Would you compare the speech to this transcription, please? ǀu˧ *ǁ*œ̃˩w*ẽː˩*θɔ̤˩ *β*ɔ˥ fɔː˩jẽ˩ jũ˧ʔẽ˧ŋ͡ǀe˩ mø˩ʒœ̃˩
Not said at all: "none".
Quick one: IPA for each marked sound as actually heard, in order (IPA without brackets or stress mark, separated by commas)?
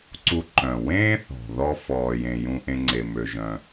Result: ǃ, ẽː˥, ð